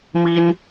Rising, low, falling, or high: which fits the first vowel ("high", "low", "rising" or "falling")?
high